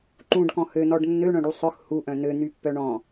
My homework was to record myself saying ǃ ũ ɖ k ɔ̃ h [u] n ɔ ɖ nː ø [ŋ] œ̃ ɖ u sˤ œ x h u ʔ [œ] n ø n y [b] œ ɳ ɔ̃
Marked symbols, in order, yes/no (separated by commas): no, no, no, no